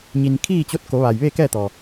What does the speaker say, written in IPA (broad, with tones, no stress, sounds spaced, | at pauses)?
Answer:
ɲ i˩ n kʰ iː˥˨ t͡ɕ o˧˥ t̚ k o˩˧ ʋ a˩ j ʋ eː˥˨ k ɛː˥˨ t̪ ɔː˩